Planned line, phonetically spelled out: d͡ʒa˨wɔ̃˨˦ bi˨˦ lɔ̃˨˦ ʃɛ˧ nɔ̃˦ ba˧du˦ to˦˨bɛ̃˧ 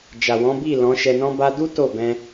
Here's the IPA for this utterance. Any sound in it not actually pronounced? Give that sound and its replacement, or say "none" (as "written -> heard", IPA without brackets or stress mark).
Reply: i˨˦ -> i˦˨